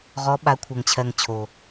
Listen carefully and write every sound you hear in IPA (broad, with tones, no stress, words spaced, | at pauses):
ʁɔ˩˧ɓa˩˧kʷʰɜ˩ŋt͡ɕʰɜ˩ŋ t͡ɕʰo˩